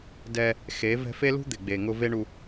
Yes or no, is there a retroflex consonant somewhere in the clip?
yes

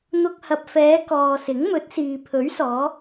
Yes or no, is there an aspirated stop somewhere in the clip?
yes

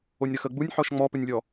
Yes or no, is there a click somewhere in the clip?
no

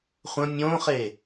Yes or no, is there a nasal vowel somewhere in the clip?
yes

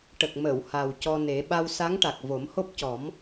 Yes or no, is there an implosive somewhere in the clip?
yes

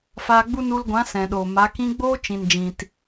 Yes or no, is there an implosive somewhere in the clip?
yes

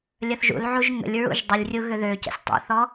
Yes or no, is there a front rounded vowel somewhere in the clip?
yes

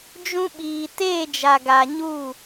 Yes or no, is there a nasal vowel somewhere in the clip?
yes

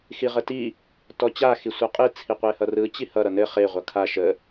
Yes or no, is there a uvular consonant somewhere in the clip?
yes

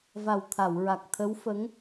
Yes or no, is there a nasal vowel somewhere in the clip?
no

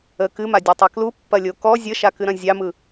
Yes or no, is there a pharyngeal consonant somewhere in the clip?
no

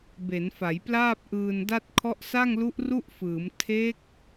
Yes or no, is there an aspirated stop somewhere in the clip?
yes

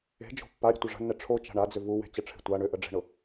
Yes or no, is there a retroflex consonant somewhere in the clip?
yes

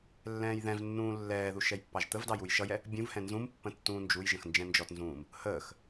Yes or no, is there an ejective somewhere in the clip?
no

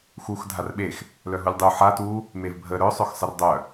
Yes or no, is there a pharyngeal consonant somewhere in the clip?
yes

